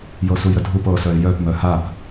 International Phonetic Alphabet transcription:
j ɤ s u j ɾ ə dʱ u p ɤ s œ ɪ̯ j œ p m œ h a p

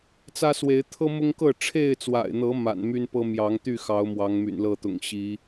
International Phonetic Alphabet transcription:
t͡s ä˦ s w e˨˦ ɪ̯ t̪ʰ ɤ˦ m ʊ˦ ŋ k ɤ˥˨ ʈ͡ʂʰ e˥˨ ɪ̯ t͡s w a̰˨˩ ɪ̯ n̪ ɤ˨˦ m a̰˨˩ n m y˦ n p ɤ˦ m j ɑ˨˦ ŋ t̪ y˥˨ x ɑ˨˦ ʊ̯ m w ɑ˨˦ ŋ m y̰˨˩ n l ɤ˥˨ t̪ ʊ̰˨˩ ŋ ɕ i˨˦

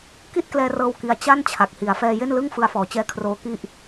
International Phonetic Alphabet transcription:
k i˥˩ t̚ k l ɛː˧ r ɤː˧ w k i˧ a̯ t͡ɕ a˥˩ n t͡ɕʰ a˨˩ k̚ h i˩˦ a̯ f ɛː˧ j e˥˩ n l ɯ˥˩ ŋ f ɯ˧ a̯ f ɔː˩˦ t͡ɕ ɛː˦˥ kʰ r oː˦˥ k i˥˩ ʔ

